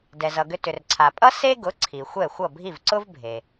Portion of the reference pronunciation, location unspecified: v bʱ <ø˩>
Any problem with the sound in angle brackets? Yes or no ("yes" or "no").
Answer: yes